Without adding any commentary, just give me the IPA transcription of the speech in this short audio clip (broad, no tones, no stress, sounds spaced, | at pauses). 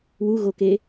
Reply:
w u ɣ o k e